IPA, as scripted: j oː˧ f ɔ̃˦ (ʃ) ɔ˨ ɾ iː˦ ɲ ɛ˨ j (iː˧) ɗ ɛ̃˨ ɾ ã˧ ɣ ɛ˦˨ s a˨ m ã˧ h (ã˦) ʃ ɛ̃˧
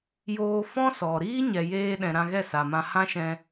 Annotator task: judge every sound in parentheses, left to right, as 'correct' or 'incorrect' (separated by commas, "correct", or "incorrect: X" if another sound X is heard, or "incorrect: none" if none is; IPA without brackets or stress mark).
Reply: incorrect: s, incorrect: eː˧, correct